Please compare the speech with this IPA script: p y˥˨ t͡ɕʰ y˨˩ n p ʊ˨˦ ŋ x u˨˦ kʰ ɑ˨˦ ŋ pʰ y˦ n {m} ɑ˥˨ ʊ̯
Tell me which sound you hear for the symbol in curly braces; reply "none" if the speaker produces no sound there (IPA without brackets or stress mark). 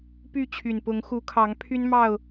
m